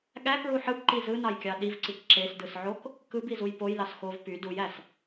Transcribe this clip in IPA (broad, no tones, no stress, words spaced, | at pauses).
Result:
ɠækɹu ħɯbǃi zɯnɑjkʲɑ ɗivǀik ǁesdɯsʕok | kɯbizuj pojlɑs xov py dujæs